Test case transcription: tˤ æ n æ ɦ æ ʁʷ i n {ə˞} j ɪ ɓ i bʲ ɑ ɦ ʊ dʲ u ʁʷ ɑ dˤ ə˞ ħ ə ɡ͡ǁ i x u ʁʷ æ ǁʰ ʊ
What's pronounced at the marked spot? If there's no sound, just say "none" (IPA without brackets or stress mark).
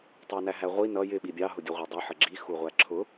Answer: ʌ